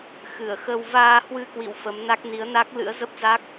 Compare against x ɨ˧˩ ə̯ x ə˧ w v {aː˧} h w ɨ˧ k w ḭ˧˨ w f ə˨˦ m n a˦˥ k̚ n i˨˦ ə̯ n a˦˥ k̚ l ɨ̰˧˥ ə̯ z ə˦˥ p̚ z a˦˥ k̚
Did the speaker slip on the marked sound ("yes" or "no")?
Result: no